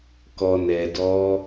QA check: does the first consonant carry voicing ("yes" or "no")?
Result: no